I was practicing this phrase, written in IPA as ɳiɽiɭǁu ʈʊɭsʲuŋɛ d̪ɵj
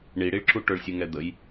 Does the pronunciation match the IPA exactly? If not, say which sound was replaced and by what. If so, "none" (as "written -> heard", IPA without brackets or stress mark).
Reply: ɵ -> ə